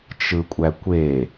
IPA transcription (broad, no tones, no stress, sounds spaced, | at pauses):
t͡ʃ ɯ kʷʼ æ kʷ e